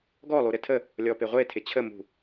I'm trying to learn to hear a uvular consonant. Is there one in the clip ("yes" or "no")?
yes